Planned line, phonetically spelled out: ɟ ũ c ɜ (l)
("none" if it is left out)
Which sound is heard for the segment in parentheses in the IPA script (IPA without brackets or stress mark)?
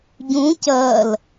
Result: l